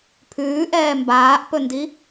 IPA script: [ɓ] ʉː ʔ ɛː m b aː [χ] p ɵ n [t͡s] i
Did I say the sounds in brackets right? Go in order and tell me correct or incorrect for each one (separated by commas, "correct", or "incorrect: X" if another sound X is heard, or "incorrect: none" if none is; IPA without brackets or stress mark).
incorrect: pʰ, incorrect: ʔ, incorrect: d